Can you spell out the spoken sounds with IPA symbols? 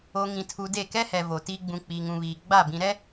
o˨ ŋ ĩ˨ tʰ u˨ d e˦˨ k ɛ˦ h ɛ˨ v o˨ t iː˦ ɡ͡b ũ˨ k͡p iː˨ ŋ ũ˨ β iː˨ ɡ͡b a˦˨ b ĩ˨ ɾ ɛ˦

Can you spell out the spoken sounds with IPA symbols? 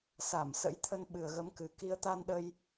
s a˧˩ m s ə̰˧˥ j t̪ʰ ə˧ n ɓ ɨ˨˩ ə̯ ɣ ə˨˦ m k ɨ˨˩ k i˨˦ ə̯ t̪ a˧ n ɗ ə˧ j

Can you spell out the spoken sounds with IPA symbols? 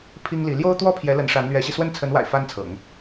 pʰ i˥ ŋ l i˧˥ l j o˥ ʊ̯ t̪ w ɔ˥ pʰ j ɛ˧˥ l ə˧˥ n ʂ a˧˥ n l ɥ ɛ˧˥ ɕ i˧ s w ə˥˩ n t͡sʰ ə˧˥ n w a̰˨˩ ɪ̯ f a˥ n t͡sʰ ɤ̰˨˩˦ ŋ

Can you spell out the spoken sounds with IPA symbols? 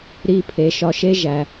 ɾ i˨ pʰ e˩ ʃ ɒ˨ ʃ e˥ ʒ æ˩

